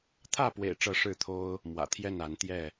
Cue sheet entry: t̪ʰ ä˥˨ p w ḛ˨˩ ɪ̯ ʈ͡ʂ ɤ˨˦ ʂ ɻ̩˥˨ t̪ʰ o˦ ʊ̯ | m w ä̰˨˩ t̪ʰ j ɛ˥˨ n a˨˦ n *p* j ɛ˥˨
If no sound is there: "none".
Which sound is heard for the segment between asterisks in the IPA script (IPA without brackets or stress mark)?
t̪